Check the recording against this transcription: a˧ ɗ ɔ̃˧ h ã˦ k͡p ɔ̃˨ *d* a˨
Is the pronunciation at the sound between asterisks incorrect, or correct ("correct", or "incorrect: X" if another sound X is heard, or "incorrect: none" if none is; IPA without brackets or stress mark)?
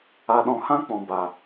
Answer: incorrect: b